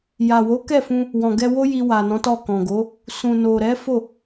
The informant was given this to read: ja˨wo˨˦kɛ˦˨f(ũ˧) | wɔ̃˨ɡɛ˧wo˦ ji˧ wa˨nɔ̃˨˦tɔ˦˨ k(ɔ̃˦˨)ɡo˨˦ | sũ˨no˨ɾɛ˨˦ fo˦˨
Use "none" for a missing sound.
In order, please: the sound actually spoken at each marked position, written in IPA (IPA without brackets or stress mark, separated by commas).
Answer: ũ˧, ɔ̃˨